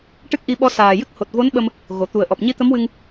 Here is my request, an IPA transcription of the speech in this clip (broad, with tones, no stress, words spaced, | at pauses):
ʈɨ˦˥k̚ʔi˧ɓɔ˧˥ saː˨˩jɨ˦˥k̚ ho˨˩t̚vo˧˥n ɓə˧m | ɣo˨˩˨ t̪u˨˩ə̯ʔɔ˨˩p̚ ɲi˧˥t̪ə˧˥mwɨ˧ŋ